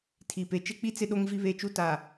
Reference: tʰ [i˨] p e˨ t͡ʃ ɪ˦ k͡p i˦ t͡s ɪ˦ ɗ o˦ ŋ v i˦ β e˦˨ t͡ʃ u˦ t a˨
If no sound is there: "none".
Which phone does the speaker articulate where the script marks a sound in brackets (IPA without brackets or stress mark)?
i˨